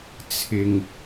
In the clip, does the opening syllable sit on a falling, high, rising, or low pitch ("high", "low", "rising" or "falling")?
low